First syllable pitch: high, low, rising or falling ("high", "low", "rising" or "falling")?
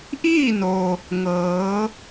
falling